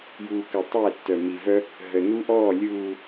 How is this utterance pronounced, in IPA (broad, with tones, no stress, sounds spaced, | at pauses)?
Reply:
j uː˨ k əː˨ tˤ ɛ˦˨ tː œ˨ m i˨ v œ˦ | ɦ ə˨ n u˦ ʔ ɔː˦˨ lʲ uː˨